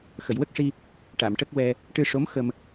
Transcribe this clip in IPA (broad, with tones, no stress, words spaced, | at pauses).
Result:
xə˨˩˨jwə˦˥k̚ʂi˧ | ʈa˨˩˨mʈə˦˥k̚wɛ˧ | ʈɨ˧ʂo˧˥m xə˧m